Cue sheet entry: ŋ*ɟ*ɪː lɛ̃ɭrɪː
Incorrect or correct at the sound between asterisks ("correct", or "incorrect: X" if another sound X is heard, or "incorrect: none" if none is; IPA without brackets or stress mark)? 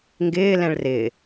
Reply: incorrect: ɡ